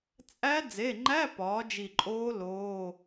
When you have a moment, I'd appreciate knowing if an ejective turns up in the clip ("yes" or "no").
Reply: yes